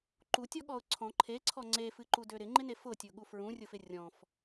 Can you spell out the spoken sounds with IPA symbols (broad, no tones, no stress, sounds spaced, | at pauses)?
ǃ u tʲ ɔ ɠ ɔ ʊ̯ ǀʰ ɔ̃ ǃʰ e ǀʰ ɔ ŋ͡ǀ e f ɨ ǃ u d ø ɾ ɪ ŋ͡ǃ ɪ n e f ʊ tʲ ʊ ɠ u f ɹ ũ rʲ ʊ f ɪ rʲ ɔ̃ f